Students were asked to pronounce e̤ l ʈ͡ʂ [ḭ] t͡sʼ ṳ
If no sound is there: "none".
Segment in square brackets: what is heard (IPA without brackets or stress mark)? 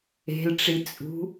i